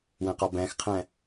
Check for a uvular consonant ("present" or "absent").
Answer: present